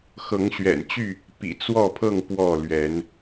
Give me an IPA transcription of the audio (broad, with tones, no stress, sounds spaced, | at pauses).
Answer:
x ɤ˨˦ ŋ ɕ ɥ ɛ̰˨˩ n t͡ɕ y˥˨ | p ḭ˨˩ t͡s w ɔ˥˨ pʰ ɤ˥˨ ŋ p w ɔ˥˨ l ɥ ɛ˨˦ n